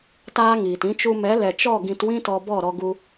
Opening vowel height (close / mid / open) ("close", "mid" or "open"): open